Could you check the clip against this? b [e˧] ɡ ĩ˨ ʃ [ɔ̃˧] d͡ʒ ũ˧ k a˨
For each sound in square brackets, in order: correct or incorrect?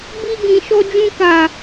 incorrect: i˧, incorrect: ɔ˧

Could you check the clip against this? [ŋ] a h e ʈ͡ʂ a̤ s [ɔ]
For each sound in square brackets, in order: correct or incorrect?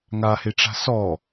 correct, correct

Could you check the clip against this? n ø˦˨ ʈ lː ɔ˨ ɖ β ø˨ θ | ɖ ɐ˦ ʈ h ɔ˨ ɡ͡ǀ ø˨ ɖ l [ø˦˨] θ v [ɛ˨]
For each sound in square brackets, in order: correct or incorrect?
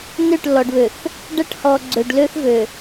incorrect: ø˦, incorrect: ø˨

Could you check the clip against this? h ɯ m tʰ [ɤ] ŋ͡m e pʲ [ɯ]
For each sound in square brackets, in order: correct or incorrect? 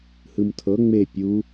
correct, incorrect: u

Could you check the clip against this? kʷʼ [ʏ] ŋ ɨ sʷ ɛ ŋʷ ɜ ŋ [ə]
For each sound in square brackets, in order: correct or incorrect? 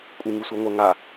incorrect: ɨ, incorrect: a

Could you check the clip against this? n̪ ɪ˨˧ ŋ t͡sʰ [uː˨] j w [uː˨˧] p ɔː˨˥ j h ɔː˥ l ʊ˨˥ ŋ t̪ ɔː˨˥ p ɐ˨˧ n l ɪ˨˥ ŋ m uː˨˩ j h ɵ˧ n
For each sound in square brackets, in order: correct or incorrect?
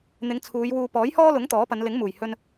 incorrect: uː˨˧, incorrect: uː˧

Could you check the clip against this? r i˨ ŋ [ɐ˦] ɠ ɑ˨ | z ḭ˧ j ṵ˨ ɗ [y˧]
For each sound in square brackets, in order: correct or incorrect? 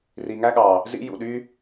incorrect: æ˦, correct

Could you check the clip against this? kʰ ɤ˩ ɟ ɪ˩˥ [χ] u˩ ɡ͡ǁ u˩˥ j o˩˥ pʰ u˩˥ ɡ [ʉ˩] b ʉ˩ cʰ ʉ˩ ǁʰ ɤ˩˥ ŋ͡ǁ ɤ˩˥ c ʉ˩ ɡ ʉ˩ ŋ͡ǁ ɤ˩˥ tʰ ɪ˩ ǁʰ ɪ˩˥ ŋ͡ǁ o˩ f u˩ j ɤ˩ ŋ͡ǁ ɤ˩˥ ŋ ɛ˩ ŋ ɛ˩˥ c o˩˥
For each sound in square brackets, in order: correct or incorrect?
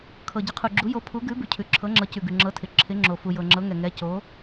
incorrect: qʰ, incorrect: ʉ˩˥

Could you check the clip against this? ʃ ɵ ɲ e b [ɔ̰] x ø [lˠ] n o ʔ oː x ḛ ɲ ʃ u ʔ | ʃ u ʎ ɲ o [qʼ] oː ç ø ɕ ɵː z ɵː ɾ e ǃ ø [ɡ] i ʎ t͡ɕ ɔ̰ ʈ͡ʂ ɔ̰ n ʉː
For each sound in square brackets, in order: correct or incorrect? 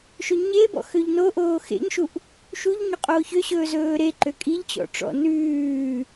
correct, incorrect: ʎ, correct, incorrect: kʼ

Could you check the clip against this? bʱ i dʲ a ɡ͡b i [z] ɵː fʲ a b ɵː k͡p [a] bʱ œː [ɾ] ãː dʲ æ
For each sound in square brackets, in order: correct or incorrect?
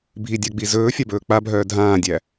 correct, correct, incorrect: dʱ

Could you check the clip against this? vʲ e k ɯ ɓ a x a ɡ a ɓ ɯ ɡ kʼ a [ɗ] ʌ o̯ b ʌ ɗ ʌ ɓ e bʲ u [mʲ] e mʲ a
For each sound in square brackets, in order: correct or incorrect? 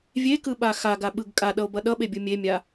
correct, correct

